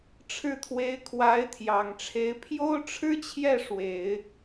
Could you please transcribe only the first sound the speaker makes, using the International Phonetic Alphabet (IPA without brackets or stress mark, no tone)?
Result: ʈ͡ʂʰ